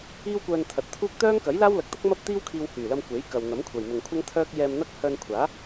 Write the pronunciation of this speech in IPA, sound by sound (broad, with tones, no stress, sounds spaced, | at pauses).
iː˥ w kʷ œː˧ n t̪ʰ ɐ˨ t̚ t̪ʰ uː˥ k̚ t̪ œː˥ ŋ k ɐ˨˥ j l aː˥ w l ɐ˧ k̚ t̪ ɐ˥ k̚ m ɐ˥ p̚ t̪ iː˥ w kʰ iː˧ w h yː˨˩ l ɐ˧ m kʷ e˨˥ j k ɐ˨ w n̪ ɐ˨˥ m kʷʰ ɐ˨ j m ʊ˨ ŋ kʷʰ ɐ˥ ŋ t̪ʰ œː˥ k̚ j ɛː˧ m n̪ ɐ˥ k̚ h œː˧ n kʷʰ aː˨˥